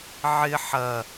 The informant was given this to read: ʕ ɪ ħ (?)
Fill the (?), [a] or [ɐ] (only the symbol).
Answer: ɐ